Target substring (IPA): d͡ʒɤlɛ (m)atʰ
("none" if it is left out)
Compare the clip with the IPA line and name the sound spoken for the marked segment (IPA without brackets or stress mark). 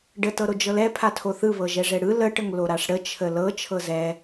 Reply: pʰ